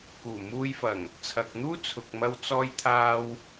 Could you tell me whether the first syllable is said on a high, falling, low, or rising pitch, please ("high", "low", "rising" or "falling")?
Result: low